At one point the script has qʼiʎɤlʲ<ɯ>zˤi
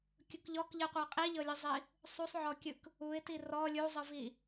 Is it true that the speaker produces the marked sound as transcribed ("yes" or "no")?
yes